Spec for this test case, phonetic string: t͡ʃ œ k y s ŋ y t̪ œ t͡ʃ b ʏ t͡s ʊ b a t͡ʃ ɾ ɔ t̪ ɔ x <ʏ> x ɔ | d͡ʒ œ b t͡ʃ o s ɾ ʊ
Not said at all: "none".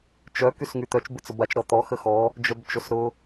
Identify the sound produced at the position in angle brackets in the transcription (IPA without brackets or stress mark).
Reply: ə